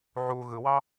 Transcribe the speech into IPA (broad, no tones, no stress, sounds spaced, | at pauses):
ʕ u ɣ ɯ w ɑ